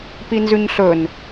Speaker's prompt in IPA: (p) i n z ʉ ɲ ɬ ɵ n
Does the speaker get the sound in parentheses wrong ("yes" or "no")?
no